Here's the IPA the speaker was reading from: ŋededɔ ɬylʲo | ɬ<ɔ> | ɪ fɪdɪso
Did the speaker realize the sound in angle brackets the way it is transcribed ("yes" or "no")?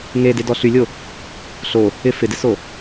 no